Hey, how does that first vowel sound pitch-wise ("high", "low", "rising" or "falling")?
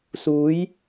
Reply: rising